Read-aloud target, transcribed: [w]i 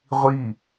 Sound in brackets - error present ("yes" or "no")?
yes